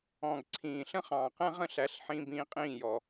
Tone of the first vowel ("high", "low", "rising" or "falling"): low